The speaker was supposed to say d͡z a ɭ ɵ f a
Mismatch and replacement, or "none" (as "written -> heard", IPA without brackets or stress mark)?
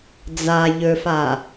ɭ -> ʎ